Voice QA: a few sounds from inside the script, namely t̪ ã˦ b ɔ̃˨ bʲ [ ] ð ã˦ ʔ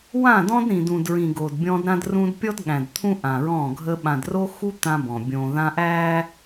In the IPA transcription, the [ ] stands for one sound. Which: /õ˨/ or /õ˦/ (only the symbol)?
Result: õ˨